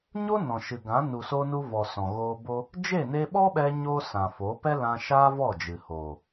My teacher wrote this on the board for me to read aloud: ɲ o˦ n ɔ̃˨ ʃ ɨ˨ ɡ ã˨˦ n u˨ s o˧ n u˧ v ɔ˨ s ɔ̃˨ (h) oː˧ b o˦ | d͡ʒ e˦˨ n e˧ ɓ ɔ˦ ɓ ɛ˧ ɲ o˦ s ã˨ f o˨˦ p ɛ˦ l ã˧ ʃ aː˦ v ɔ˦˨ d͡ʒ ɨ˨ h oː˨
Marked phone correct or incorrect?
incorrect: ɣ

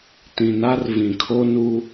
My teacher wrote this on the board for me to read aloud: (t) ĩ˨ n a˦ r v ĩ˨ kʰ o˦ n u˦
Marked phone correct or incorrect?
correct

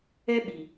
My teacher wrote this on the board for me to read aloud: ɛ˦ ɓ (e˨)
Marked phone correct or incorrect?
incorrect: i˨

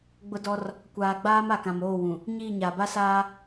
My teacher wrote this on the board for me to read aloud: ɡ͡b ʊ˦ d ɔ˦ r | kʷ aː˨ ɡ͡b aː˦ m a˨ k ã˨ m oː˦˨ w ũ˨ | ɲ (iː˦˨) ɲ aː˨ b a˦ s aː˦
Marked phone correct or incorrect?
correct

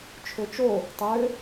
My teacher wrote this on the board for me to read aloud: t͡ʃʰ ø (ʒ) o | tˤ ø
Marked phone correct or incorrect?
incorrect: t͡ʃ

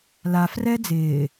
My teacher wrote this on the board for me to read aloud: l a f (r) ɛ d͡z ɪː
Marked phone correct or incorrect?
correct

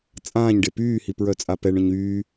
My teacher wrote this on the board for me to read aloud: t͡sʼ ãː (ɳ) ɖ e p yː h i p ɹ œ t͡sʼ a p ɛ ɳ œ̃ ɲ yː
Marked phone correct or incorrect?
incorrect: ɲ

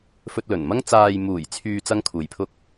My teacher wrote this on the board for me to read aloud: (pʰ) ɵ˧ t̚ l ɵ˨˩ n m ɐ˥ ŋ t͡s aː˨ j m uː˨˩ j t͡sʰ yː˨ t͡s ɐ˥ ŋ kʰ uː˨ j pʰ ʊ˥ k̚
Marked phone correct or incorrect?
incorrect: f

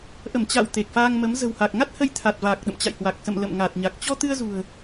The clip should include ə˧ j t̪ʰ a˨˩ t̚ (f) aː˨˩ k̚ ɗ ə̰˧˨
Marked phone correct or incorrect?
incorrect: v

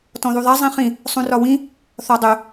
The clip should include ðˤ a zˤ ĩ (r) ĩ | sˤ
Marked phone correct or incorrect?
incorrect: χ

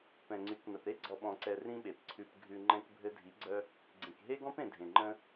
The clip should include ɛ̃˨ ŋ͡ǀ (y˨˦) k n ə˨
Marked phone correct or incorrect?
correct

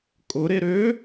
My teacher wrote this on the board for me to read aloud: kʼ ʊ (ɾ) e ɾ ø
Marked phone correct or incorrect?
correct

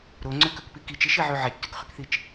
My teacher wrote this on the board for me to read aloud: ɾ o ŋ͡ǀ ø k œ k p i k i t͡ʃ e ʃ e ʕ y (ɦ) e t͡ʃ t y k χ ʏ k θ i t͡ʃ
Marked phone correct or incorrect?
incorrect: ʕ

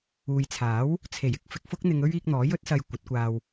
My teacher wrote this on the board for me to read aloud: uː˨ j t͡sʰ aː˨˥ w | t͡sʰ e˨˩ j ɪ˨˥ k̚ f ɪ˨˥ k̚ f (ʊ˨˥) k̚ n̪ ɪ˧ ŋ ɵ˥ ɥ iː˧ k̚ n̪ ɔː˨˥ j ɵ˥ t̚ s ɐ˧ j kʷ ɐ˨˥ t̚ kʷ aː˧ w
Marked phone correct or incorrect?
incorrect: ʊ˥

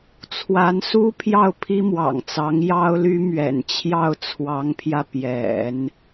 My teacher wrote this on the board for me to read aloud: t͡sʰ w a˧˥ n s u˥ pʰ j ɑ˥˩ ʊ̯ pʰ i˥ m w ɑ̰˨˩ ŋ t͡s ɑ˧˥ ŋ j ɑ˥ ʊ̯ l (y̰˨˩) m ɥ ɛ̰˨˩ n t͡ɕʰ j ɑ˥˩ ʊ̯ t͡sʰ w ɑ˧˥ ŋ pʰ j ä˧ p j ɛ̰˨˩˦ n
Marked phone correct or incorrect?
incorrect: y˥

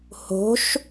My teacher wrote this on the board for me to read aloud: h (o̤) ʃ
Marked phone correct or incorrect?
correct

